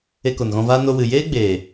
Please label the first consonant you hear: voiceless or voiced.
voiceless